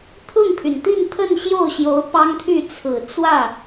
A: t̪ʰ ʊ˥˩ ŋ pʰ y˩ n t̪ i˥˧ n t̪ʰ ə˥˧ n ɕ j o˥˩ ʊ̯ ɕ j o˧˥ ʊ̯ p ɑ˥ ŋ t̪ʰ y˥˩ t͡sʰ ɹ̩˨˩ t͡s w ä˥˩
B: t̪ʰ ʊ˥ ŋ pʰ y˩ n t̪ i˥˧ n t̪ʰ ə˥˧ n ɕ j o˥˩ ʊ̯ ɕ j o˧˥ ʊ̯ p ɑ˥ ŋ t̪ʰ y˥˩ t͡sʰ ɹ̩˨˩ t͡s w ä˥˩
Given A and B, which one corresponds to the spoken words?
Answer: A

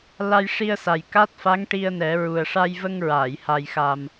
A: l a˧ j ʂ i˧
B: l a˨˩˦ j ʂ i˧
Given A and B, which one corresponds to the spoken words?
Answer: A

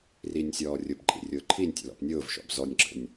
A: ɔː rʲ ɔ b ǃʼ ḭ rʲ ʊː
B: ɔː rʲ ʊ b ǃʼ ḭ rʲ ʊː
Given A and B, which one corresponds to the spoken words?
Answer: B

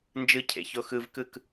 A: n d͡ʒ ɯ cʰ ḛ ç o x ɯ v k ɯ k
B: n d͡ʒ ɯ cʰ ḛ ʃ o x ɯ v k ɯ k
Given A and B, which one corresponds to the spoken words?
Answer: A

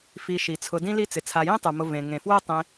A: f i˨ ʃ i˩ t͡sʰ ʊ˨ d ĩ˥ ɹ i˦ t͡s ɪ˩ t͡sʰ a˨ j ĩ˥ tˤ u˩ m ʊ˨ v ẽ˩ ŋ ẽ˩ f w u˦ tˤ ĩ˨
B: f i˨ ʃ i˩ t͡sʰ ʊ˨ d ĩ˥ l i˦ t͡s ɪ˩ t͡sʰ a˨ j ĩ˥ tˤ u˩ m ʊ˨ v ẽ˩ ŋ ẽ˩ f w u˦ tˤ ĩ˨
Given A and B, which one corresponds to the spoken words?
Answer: B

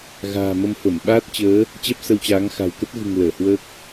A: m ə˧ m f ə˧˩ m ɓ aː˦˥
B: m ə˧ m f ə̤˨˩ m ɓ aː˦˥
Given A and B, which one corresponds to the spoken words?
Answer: A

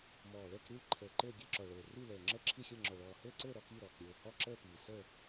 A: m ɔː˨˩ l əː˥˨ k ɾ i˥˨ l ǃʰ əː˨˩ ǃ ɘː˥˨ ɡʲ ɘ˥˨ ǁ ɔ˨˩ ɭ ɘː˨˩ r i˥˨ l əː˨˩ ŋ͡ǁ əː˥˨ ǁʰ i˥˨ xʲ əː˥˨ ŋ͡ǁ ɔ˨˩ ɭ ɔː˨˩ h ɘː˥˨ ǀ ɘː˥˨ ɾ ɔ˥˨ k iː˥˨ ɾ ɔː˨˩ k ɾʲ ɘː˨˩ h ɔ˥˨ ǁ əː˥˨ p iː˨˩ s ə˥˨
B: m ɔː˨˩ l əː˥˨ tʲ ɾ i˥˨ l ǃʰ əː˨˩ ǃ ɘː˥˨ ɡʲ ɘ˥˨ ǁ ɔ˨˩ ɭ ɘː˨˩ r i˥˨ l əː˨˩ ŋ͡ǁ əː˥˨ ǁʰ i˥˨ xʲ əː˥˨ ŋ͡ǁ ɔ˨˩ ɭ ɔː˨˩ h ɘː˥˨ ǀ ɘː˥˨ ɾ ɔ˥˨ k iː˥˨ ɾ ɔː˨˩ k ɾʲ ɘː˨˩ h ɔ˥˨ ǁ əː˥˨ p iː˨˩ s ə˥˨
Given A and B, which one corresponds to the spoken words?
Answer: A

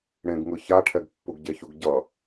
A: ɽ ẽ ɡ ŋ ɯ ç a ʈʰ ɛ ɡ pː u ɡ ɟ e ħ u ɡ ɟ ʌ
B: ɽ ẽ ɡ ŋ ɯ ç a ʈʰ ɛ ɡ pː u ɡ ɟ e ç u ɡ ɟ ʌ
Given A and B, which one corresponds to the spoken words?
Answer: B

